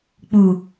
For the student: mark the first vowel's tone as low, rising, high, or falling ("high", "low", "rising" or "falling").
low